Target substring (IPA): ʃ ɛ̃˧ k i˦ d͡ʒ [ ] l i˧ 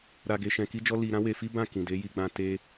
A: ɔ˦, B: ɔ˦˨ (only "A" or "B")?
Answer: A